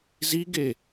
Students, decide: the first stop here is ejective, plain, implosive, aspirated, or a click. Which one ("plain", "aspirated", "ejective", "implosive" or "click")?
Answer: plain